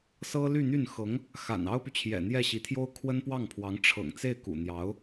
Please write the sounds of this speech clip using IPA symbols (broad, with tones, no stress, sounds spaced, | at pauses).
s ɤ˥ l y˥˧ n̪ y˥˩ n x ɤ˧˥ ŋ | x a̰˨˩ n ɑ˥ ʊ̯ p y˨ t͡ɕʰ j ɛ̰˨˩ n̪ j ɛ˥˩ ɕ i˧˥ t̪ʰ j o˥ ʊ̯ kʰ w ə˥ n p w ɑ˥˩ ŋ pʰ w ɑ˧˥ ŋ ʈ͡ʂʰ ɤ̰˨˩ ŋ t͡s e˥˩ ɪ̯ k ṵ˨˩ n̪ j ɑ˧˥ ʊ̯